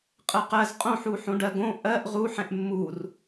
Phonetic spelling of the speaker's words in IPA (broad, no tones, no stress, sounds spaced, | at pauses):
qʼ ɜ q ɜ z qʼ õ ħ u ħ õ ɖ ɜ ɡ õ ʔ ɜ ʔ ʁ u ħ ɛ̃ ʔ mː u r